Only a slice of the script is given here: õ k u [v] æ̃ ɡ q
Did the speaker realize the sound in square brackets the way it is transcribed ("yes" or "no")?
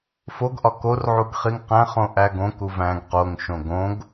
yes